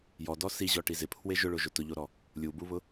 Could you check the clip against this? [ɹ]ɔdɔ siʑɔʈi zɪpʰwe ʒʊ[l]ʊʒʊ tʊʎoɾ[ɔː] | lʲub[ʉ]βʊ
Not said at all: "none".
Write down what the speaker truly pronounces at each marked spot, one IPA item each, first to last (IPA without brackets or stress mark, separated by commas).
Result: j, ɭ, ɔ, u